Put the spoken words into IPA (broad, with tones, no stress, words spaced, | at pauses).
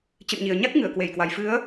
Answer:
t͡ɕɨ̰˧˨nɲi˨˩ə̯ɲa˦˥k̚ŋɨ˧˩ə̯ kwe˧˩jkwa˨˩jfɨ˨˦ə̯